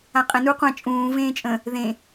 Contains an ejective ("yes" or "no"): yes